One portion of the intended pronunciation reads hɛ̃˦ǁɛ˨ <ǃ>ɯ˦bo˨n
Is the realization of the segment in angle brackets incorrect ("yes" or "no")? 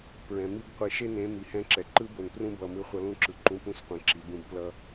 no